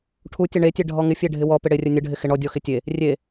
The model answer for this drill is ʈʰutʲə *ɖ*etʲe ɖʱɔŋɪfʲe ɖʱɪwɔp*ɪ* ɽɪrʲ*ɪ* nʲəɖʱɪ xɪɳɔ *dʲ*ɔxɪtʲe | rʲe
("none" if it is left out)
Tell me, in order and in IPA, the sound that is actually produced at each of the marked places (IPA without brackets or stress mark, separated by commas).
ɳ, ɪ, ə, dʲ